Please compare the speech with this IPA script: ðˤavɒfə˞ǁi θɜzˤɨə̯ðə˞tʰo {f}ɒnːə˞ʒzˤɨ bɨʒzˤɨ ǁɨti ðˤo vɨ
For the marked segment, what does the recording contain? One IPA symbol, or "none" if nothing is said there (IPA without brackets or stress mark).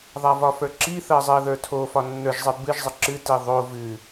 f